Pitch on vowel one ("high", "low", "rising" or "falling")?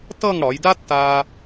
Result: falling